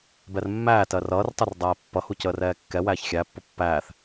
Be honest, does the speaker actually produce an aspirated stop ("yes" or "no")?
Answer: no